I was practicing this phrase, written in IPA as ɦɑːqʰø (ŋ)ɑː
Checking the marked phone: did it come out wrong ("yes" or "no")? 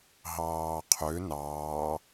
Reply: yes